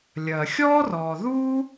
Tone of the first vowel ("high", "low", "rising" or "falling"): low